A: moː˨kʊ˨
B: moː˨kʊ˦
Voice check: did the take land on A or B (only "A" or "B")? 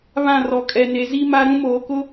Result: B